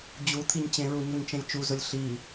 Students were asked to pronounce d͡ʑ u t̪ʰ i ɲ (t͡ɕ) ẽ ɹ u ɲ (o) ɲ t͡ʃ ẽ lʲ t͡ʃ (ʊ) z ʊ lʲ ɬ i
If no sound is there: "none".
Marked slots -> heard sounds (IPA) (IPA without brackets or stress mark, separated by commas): t͡ɕ, o, u